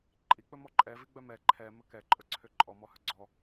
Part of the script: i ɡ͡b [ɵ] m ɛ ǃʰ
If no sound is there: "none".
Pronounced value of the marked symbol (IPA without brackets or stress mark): œ